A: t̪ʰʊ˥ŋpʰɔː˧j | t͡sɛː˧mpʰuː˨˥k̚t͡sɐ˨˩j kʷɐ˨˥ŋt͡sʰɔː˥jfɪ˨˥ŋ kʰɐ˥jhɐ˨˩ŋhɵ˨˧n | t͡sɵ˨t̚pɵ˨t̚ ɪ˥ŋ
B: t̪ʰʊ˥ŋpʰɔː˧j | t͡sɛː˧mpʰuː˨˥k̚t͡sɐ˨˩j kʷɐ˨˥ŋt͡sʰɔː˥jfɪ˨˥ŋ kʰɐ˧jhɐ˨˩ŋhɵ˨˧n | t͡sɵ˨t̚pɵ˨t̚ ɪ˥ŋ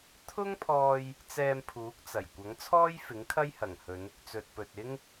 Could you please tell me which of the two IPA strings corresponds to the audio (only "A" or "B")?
A